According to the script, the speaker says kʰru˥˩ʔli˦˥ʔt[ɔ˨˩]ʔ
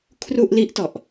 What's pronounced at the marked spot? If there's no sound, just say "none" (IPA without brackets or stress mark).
ɔ˨˩